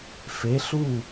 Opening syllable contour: rising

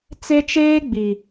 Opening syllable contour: high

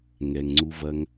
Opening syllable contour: low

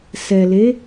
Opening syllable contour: low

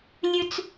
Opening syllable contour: high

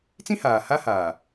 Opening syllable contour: high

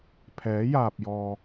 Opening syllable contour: rising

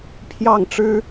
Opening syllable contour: falling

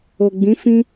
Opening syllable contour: low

